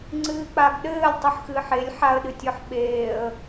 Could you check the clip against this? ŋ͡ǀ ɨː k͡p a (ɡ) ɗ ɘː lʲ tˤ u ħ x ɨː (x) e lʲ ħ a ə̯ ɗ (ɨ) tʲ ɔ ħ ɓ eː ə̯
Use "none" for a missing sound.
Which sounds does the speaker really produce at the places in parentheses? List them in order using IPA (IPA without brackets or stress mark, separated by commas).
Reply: ɡ, ħ, ɨ